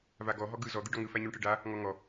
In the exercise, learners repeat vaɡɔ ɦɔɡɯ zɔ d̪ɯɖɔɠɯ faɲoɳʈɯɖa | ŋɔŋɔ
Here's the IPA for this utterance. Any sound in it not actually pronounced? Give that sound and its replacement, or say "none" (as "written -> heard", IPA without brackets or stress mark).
ɠ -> ŋ